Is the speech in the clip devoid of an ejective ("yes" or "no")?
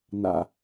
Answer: yes